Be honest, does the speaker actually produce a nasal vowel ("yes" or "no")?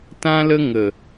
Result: yes